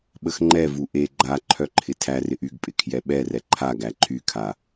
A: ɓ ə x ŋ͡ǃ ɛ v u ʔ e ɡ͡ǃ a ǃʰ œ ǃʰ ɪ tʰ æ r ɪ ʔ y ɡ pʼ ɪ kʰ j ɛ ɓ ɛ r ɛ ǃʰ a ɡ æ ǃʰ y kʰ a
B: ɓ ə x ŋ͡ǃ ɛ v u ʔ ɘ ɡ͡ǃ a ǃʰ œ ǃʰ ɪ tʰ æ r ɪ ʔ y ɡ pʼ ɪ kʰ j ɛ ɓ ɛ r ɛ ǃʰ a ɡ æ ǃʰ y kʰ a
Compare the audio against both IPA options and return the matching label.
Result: A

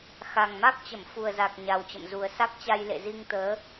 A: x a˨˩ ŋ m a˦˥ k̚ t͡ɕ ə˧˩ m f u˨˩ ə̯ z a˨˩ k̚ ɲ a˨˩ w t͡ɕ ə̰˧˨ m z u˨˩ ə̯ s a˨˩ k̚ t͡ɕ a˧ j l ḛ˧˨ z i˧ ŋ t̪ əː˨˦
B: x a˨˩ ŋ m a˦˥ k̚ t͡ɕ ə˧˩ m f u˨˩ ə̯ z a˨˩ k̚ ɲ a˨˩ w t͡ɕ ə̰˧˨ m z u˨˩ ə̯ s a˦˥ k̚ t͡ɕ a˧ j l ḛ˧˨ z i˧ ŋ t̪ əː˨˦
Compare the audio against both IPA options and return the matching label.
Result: B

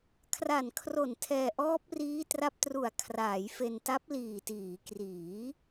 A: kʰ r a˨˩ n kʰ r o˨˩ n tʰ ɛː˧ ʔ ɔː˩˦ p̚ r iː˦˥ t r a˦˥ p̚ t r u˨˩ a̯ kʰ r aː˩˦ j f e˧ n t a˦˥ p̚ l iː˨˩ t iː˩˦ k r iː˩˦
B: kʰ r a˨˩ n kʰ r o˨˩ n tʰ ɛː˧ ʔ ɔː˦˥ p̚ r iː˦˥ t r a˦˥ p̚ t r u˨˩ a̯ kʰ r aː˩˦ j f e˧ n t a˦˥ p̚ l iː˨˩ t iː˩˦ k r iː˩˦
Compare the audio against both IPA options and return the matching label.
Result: B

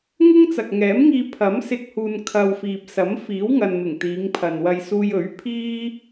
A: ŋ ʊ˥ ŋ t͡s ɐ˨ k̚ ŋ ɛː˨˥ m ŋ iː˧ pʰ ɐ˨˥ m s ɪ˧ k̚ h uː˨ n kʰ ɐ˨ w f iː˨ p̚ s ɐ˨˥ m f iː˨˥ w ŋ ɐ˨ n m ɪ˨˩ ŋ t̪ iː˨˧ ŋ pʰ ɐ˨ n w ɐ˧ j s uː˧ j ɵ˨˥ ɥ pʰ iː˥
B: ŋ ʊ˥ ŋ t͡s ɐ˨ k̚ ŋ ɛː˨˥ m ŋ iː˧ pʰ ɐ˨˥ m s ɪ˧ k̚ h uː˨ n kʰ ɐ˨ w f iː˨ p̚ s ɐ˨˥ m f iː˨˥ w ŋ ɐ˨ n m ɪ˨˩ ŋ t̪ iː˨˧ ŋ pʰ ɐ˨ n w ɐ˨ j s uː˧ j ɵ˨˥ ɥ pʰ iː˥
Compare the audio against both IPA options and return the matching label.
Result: A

